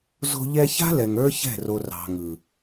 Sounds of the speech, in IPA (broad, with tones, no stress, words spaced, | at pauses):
zo̤˧ ʎɛ˧ça̤˦lɛ˨ŋ ə˞˦çɛ̤˦˨ro˨ rɑ̤˨ŋɯ˨